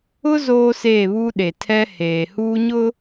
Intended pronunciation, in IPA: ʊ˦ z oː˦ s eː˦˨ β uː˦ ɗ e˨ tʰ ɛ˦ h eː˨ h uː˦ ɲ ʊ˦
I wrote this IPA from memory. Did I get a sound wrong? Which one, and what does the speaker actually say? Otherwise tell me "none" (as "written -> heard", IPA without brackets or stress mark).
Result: none